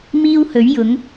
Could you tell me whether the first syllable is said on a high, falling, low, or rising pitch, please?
high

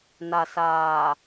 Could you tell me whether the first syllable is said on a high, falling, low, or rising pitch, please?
low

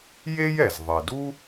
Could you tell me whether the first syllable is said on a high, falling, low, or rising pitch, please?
high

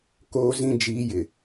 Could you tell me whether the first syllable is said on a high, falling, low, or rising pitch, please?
high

